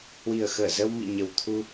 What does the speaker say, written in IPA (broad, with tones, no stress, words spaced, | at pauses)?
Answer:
hwi˨˩ə̯xəː˧˩ zə˧wmḭ˧˨ɲə˨˩w t̪ʰu˧